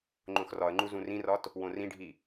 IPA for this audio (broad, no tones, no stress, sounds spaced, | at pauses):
ŋ͡ǃ õ x r ɒ ə̯ ŋ͡ǃ u z ũ r ĩ r ɒ t | w õ r ĩ ɖʱ i